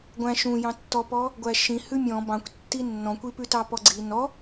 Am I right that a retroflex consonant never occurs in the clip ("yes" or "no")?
yes